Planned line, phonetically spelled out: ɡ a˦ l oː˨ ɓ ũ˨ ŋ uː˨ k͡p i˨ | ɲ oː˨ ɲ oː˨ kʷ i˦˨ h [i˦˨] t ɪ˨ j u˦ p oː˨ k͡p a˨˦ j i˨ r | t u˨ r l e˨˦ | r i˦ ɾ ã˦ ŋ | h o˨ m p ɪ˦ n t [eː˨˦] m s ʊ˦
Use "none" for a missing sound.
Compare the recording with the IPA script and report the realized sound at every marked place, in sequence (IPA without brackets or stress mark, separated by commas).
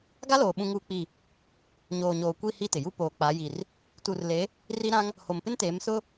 i˦˨, eː˨˦